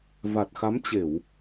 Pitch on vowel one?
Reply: low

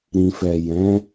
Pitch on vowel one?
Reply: low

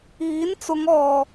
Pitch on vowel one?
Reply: rising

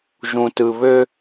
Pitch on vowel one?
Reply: low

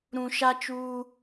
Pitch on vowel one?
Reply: low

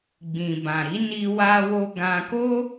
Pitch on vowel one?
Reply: low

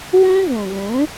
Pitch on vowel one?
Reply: high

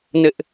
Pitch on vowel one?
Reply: high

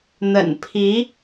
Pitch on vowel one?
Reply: low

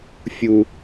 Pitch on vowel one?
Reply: low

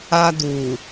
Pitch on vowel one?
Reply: high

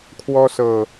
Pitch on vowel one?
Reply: high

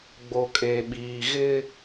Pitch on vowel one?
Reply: low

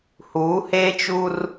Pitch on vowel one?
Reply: rising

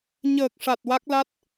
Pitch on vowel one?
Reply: low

